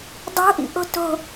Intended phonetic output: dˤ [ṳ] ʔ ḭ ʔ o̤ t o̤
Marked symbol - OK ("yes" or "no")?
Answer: no